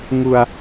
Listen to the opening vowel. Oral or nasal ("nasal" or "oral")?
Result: oral